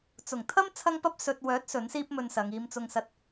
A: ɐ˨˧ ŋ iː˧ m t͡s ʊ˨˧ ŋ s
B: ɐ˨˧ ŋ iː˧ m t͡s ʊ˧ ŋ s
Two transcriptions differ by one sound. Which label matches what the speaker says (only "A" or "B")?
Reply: B